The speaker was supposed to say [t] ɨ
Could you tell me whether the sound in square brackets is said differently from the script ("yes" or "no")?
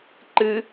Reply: yes